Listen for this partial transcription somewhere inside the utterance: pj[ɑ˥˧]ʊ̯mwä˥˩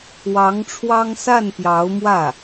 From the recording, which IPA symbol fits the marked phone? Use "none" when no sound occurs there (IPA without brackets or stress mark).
ɑ˧˥